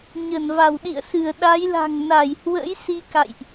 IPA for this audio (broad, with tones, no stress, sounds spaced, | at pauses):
ɲ ə˧˩ n v a˧˩ w ɗ ḭ˧˨ ə̯ s ɨ˧˩ ə̯ ɗ a˨˦ j l a̤˨˩ ŋ n a˧˩ j h w ə̰˧˥ j s i˧ k a̰˧˨ j ʔ